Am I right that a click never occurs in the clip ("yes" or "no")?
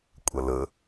yes